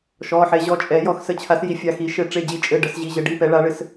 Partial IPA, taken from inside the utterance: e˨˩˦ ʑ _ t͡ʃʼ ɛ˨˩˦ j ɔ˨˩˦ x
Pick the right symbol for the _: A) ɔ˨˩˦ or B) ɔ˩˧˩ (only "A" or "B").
B